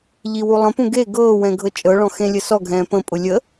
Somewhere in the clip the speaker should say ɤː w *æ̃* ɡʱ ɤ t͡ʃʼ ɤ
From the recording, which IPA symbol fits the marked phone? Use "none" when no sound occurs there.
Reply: ɛ̃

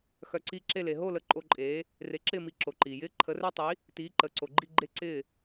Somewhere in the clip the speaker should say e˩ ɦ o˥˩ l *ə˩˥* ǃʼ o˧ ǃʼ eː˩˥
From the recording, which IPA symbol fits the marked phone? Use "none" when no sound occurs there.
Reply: ə˩˥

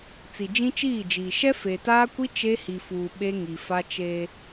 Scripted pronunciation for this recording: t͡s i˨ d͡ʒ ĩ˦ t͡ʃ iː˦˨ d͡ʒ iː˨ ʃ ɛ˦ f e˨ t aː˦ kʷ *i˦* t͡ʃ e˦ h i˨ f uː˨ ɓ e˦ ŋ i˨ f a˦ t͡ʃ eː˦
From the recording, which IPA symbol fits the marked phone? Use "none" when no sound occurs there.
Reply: i˦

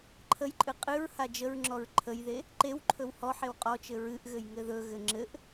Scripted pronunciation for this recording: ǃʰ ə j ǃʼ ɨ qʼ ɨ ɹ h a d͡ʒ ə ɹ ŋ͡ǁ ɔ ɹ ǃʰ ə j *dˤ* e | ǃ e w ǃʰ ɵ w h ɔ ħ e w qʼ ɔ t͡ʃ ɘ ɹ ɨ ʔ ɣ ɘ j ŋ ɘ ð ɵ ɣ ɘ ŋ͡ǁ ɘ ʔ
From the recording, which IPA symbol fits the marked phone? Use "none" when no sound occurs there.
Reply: ð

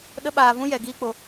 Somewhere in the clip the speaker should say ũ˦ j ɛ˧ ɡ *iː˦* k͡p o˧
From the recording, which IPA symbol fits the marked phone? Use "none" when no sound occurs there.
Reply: iː˦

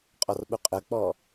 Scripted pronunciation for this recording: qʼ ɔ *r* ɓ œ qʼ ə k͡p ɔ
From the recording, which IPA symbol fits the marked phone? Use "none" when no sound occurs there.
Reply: r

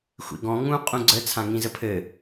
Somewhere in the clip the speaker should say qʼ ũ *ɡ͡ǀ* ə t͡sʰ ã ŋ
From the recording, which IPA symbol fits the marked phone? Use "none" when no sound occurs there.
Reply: ɡ͡ǀ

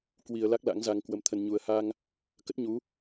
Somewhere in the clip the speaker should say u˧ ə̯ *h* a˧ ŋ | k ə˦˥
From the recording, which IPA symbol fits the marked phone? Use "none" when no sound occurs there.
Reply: h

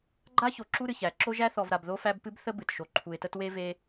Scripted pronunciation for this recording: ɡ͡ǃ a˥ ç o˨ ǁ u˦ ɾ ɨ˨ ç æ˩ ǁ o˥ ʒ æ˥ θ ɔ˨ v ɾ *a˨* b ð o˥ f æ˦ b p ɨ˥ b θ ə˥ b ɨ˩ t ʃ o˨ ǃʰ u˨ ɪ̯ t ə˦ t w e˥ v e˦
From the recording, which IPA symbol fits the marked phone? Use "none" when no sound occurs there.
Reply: a˨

